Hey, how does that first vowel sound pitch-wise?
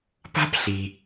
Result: high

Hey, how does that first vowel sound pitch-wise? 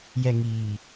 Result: low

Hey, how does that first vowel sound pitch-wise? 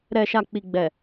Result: low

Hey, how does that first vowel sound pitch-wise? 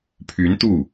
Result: rising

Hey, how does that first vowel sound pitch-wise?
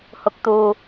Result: low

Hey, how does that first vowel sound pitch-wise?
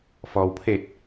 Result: low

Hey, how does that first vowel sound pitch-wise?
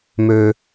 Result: low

